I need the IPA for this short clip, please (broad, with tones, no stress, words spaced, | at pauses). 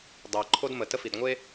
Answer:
dˤe˩ ǃʰo˥dmə˩tə˥ fi˩dŋʷe˥